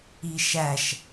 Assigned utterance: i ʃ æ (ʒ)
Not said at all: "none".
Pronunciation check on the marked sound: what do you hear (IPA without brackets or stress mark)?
ʃ